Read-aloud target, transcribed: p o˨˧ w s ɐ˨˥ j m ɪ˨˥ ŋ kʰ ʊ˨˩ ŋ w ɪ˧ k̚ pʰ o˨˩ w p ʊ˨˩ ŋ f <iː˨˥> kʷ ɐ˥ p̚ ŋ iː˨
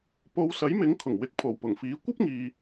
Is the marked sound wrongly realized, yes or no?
no